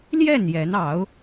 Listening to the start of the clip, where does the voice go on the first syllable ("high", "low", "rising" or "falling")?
falling